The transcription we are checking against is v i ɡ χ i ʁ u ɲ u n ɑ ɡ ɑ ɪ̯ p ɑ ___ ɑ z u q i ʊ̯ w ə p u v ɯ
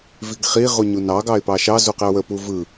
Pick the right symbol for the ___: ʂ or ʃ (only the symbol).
ʃ